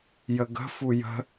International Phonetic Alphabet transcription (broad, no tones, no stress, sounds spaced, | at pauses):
j ə ɡ ə̤ f u j ə̤